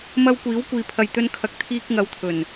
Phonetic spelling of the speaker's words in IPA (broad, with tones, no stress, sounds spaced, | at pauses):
m ɐ˥ w kʷ iː˨˥ w kʷ iː˨ pʰ ɐ˨ j t̪ ɵ˧ n kʰ ɐ˨˥ k̚ t̪ʰ iː˧ k̚ ŋ ɐ˨˧ w t̪ʰ ɵ˨˩ n